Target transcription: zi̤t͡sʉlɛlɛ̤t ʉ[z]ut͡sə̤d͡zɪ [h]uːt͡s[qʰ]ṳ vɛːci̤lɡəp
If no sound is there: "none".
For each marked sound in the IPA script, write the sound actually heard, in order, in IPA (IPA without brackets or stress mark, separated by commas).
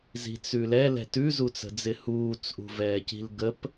z, h, ʔ